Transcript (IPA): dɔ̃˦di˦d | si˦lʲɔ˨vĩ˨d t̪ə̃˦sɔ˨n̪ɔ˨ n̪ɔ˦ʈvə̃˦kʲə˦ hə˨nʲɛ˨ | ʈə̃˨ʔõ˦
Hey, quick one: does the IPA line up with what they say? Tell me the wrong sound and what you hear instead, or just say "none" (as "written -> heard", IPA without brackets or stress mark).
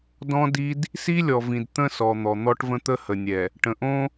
kʲ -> t̪